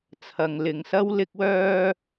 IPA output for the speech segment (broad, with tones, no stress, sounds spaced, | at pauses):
t͡sʰ ɐ˨ ŋ l ɪ˨ ŋ s ɐ˥ w l ɪ˥ k̚ w œː˥